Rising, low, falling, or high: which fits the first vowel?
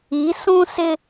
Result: rising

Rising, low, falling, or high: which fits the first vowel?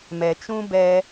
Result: low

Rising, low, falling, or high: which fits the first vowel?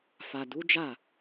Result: low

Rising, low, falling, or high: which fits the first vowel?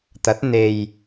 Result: rising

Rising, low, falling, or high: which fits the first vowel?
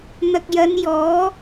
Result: low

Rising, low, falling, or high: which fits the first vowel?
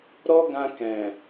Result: high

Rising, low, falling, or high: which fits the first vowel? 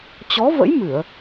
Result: rising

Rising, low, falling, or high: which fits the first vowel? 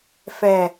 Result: low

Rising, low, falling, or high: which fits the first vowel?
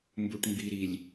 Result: low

